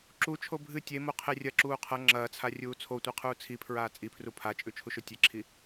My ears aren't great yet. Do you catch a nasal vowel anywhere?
no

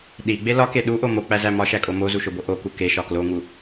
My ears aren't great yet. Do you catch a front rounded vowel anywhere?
no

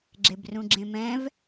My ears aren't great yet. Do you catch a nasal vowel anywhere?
yes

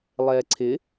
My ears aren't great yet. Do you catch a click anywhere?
yes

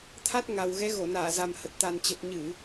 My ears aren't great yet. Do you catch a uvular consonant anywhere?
no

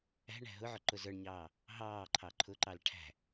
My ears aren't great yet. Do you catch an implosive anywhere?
no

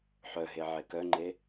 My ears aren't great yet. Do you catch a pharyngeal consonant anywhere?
yes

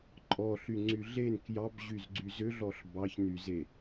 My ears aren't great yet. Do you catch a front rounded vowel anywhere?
yes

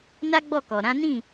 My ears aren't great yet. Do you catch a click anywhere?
no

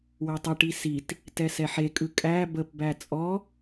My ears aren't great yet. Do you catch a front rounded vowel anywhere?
no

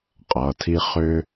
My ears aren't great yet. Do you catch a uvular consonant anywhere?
yes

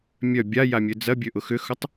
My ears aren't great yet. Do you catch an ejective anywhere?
no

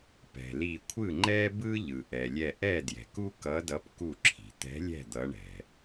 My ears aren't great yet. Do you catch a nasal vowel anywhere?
no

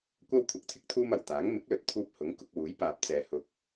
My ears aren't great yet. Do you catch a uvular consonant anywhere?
no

